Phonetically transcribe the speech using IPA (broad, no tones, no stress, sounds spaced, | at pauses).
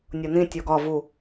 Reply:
nʲ o n ĩ tʲ o ɡ ɒ v u